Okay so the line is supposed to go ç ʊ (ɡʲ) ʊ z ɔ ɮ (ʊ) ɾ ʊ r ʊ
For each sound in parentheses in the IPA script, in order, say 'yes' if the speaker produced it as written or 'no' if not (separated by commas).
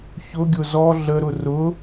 yes, no